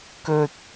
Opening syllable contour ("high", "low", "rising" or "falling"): high